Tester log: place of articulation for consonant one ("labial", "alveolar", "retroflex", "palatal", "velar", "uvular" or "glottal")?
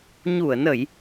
palatal